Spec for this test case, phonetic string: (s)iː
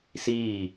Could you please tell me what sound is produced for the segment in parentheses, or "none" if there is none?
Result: s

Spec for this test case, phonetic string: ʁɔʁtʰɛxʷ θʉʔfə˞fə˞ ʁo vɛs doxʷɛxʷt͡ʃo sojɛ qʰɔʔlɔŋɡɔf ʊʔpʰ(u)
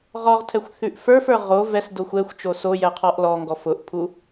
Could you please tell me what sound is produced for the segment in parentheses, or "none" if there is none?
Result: u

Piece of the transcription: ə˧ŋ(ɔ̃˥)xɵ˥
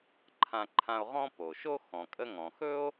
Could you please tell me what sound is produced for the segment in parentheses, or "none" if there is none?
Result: ɔ̃˩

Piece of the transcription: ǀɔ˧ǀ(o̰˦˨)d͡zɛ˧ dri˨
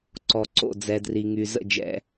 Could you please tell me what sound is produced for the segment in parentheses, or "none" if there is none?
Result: o̰˦˨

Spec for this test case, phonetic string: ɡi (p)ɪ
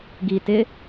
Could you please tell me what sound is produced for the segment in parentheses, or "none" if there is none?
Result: t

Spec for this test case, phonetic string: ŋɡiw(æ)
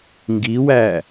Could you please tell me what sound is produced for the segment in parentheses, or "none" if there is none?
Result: æ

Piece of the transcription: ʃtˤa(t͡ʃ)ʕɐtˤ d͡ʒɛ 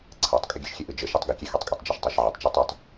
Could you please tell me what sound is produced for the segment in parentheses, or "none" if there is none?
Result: ʃ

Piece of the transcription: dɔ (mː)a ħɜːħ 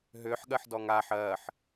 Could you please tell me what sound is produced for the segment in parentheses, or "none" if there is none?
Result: ŋ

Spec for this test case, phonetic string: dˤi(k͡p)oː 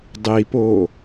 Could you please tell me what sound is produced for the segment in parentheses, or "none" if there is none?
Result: p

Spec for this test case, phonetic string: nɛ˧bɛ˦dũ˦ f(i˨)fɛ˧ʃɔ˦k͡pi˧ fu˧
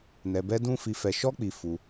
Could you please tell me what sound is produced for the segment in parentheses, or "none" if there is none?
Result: i˧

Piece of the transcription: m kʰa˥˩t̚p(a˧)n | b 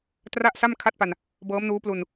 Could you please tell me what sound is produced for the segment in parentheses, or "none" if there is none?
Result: a˧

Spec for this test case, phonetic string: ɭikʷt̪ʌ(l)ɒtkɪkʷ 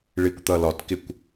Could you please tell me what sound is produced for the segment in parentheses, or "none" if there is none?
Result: l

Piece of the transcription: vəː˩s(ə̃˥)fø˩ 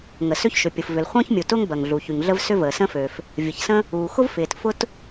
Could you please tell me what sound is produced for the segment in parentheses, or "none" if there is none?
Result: ə̃˥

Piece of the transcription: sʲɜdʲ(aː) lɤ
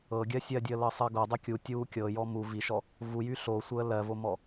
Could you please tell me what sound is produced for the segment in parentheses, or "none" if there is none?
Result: əː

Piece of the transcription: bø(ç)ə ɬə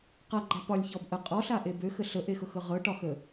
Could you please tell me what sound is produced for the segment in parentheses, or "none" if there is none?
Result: x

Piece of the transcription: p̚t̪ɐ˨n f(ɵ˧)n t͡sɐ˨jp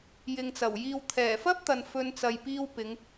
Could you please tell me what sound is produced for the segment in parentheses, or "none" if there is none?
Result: ɵ˧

